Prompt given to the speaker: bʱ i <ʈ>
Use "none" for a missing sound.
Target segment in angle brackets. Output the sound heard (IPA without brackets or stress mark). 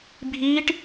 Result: ʈ